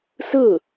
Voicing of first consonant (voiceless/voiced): voiceless